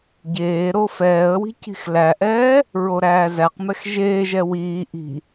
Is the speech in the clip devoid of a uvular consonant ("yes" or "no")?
no